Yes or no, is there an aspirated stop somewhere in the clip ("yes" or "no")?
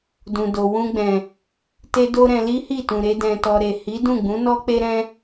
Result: no